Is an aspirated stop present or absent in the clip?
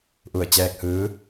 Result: absent